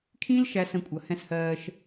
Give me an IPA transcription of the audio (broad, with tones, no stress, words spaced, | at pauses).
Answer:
kʰĩ˦l ʃæ˦sə̃˦˨kʷʼʌ˨ hɛ̃˦shɜː˦ʃ